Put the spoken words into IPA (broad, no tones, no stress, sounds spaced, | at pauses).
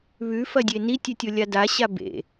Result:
β ʉ f ɐ dʲ e n i tʲ ʉ tʲ o lʲ a d a ɕ a b ḛ